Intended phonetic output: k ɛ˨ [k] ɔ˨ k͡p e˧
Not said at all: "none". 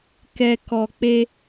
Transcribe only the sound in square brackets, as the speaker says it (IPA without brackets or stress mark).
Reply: k